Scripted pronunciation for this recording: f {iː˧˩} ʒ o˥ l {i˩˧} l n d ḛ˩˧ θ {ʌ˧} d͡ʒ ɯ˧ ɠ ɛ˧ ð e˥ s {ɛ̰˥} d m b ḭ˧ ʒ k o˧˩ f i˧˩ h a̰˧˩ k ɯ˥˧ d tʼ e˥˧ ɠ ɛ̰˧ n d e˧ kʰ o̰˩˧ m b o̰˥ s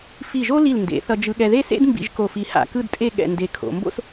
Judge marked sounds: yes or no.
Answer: no, no, yes, no

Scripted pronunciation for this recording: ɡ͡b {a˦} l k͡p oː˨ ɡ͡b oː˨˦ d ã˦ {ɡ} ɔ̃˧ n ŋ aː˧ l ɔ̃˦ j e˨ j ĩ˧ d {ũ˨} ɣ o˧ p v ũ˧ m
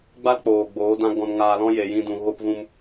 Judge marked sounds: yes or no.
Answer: yes, yes, yes

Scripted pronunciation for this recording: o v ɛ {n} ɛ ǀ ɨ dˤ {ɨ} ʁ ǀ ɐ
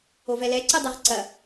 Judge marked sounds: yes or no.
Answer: no, yes

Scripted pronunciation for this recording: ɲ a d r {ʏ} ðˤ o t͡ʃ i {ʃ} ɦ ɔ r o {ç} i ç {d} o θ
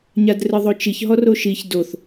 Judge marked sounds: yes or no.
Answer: no, no, no, yes

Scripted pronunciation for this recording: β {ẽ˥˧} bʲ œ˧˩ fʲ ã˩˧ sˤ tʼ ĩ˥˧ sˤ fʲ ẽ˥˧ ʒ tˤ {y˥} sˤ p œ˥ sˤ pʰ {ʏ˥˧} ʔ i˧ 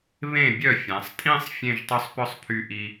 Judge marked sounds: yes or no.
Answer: no, no, no

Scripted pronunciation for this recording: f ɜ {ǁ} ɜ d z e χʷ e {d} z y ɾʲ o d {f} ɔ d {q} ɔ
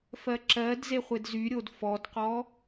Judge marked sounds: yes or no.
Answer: yes, yes, yes, yes

